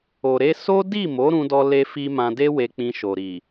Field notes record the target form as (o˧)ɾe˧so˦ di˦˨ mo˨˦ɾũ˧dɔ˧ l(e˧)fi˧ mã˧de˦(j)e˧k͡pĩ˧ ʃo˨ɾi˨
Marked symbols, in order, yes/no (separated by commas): no, yes, no